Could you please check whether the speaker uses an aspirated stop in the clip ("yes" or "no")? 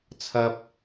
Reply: yes